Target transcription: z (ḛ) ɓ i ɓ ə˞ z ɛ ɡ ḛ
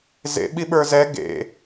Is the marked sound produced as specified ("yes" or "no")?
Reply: yes